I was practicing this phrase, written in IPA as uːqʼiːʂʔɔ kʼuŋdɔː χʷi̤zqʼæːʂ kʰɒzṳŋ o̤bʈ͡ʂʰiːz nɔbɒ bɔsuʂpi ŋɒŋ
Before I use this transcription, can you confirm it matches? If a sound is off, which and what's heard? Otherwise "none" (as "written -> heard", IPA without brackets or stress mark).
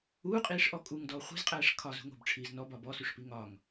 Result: none